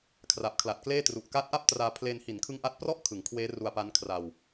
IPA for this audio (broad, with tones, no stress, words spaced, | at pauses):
kʰra˨˩p̚kʰla˨˩t̚kleː˥˩ tru˨˩ʔka˦˥t̚ʔa˥˩p̚traː˧ pʰleː˧nhi˩˦nkʰɯ˦˥ŋʔa˦˥t̚ prɔ˦˥ʔ kʰɯ˩˦ŋkʰweː˦˥ ru˧a̯pa˦˥nkʰra˧w